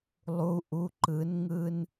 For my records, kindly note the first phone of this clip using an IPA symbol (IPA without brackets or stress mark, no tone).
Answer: lˠ